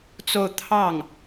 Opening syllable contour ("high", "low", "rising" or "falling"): falling